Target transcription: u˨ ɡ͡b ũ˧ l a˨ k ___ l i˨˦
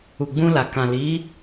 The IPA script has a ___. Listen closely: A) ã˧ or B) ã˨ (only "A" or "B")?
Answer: B